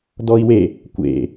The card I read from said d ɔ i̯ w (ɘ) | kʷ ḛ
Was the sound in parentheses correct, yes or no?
no